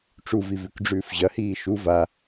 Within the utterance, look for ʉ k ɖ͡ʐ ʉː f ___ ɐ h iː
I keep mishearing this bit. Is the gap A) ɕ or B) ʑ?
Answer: B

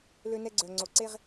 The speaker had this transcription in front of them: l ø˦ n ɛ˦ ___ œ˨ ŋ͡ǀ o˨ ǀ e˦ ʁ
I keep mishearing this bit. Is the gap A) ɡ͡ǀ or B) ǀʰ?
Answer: A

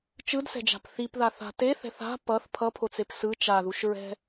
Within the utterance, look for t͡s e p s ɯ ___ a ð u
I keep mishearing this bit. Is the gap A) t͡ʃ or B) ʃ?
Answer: A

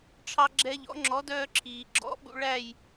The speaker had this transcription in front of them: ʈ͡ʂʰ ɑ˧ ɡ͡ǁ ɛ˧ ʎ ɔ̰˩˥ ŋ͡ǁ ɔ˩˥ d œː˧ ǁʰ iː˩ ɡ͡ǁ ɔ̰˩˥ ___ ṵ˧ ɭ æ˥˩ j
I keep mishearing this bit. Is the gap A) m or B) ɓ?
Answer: B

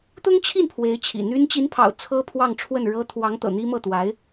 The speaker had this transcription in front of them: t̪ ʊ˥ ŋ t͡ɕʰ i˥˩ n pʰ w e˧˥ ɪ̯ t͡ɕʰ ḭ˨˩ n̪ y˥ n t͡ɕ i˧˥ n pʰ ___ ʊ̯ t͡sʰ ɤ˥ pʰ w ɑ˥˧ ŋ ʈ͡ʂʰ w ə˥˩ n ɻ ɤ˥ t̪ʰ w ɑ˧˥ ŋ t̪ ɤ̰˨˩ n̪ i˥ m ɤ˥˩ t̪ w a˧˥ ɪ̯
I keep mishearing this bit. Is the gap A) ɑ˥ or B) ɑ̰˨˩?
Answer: B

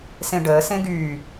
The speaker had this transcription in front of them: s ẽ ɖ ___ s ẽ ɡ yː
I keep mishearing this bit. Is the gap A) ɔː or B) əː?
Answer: B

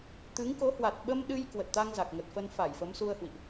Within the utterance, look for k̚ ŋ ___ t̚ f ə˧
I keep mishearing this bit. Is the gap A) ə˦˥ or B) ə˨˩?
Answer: B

